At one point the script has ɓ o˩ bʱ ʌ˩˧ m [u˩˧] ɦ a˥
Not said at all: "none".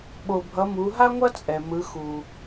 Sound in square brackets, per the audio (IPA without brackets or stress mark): u˩˧